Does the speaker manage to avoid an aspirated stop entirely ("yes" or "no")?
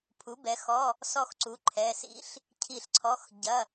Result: no